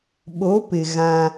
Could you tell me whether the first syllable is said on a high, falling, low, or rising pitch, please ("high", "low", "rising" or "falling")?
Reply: rising